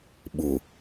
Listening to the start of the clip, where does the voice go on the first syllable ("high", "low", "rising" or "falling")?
low